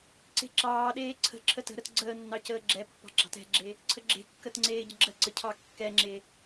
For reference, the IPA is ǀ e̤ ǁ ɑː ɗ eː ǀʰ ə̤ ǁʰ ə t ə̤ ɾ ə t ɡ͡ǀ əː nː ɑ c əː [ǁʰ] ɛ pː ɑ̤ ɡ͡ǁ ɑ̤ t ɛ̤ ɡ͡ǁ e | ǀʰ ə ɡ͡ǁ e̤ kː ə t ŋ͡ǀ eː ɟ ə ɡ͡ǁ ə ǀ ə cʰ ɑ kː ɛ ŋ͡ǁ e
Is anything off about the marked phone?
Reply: yes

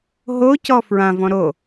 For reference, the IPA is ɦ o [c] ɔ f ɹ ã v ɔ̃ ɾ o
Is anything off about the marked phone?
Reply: no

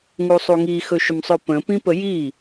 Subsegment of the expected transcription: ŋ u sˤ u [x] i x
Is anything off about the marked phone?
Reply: yes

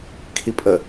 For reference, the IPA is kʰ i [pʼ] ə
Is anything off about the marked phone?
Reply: no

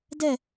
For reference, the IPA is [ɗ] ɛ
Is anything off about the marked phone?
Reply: yes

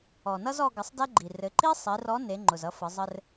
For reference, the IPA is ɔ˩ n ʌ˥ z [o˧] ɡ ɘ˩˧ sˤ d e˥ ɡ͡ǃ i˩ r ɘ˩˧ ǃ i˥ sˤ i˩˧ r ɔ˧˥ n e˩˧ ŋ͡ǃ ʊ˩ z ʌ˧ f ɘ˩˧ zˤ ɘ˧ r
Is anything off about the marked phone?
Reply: yes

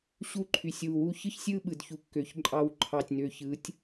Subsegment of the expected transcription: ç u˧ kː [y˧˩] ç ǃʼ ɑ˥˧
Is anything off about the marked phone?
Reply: yes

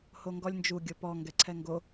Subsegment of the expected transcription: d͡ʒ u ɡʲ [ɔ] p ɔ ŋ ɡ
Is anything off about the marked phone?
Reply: yes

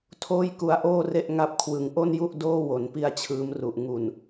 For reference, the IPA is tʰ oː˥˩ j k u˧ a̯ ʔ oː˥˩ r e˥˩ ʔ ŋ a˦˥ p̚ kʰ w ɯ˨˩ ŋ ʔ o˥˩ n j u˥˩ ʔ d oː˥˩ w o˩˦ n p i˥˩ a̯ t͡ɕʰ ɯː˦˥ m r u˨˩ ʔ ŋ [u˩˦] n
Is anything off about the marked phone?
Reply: yes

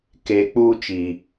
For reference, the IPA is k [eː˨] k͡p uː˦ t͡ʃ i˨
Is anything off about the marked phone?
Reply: yes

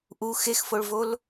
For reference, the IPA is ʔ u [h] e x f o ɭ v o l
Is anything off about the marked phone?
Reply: yes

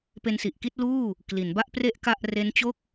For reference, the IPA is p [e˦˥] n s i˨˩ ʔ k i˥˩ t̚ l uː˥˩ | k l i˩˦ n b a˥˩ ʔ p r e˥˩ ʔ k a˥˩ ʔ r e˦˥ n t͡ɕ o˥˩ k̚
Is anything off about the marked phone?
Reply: yes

